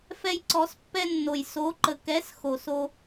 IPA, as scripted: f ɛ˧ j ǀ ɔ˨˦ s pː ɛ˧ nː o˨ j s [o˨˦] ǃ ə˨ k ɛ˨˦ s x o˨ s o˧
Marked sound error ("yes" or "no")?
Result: no